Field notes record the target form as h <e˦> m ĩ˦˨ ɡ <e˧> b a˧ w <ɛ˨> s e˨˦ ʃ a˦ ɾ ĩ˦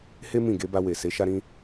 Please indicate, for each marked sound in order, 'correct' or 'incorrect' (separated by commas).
correct, correct, incorrect